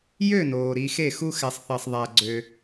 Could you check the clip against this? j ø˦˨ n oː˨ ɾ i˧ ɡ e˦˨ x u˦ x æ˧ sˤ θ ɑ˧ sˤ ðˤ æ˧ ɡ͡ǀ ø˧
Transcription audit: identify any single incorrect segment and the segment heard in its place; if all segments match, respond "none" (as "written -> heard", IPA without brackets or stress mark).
ɡ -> x